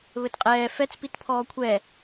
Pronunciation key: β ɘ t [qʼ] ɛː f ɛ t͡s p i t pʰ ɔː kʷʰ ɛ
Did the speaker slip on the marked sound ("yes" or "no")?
no